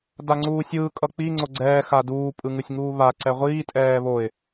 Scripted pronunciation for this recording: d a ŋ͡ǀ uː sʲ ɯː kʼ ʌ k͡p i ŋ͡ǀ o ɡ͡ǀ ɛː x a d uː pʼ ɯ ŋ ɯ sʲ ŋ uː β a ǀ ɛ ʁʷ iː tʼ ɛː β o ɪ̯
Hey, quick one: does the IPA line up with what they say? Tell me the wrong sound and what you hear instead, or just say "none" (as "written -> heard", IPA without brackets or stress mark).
none